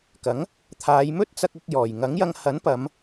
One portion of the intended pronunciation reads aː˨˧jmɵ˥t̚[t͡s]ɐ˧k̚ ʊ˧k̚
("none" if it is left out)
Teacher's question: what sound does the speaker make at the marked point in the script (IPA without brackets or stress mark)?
t͡s